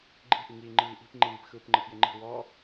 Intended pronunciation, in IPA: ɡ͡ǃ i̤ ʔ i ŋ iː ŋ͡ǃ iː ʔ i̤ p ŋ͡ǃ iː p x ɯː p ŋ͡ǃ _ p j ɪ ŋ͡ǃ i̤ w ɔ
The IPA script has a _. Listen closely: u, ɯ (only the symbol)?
ɯ